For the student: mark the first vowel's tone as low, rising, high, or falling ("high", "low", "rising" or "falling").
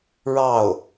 falling